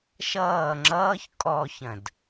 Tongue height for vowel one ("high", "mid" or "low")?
mid